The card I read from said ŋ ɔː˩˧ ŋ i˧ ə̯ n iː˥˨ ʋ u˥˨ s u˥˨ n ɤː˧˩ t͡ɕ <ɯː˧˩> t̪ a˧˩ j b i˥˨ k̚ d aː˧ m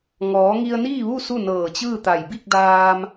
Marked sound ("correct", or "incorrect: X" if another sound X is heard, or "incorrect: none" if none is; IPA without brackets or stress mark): incorrect: ɯː˥˨